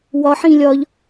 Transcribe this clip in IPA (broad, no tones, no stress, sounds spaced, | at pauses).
w ɒ ħ ĩ lʲ ɒ ʎ